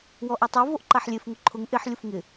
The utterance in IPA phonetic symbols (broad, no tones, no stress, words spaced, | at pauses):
wɔʔɛtˤu voʔǃaħlʲef ŋʊǃʰʊŋ ʔɪħ lʲʊfŋɪ